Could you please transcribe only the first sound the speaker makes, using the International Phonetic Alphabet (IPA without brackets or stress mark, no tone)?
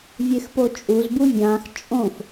vʲ